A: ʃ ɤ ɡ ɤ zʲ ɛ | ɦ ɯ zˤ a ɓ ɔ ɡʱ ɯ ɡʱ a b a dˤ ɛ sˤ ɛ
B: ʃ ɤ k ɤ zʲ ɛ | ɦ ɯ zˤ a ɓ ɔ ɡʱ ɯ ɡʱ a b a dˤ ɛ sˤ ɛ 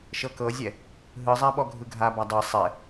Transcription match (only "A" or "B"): B